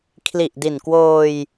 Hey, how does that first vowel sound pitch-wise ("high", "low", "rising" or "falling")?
low